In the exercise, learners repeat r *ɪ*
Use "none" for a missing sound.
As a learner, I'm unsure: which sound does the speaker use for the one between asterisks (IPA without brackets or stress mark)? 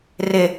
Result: ɪ